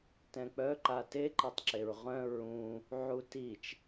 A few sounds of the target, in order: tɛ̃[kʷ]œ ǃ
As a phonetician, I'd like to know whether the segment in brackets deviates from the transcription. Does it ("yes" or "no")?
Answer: yes